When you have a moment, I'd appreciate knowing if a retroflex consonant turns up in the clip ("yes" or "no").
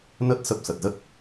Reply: no